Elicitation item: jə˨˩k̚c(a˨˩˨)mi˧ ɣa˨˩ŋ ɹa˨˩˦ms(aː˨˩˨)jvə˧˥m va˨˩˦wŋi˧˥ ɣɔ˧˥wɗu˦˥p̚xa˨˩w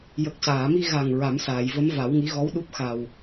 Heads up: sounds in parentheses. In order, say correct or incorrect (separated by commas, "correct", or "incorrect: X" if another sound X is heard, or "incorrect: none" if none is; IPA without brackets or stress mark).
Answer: incorrect: aː˨˩˨, correct